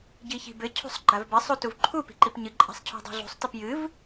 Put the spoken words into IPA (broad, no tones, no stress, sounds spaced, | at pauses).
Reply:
ɟ i ç i̤ b ɘ cʰ ṳ sˤ ɡ͡ǃ a v b ɘ sˤ u t u v ǃʰ u p i̤ ǃ i p ɲ ɨ ǃʼ a̤ sˤ cʰ ṳ dˤ ṳ ɮ ṳ sˤ t ɨ p j ɨ v